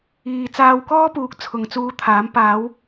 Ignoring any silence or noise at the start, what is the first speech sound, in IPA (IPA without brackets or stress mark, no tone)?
iː